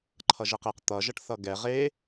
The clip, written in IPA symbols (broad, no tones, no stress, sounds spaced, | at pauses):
ǃʰ ʌ ʒ ɛ q e q t̪ ʌ ʒ ʌ ʈ θ ʌ ɡ ɛ ʁ e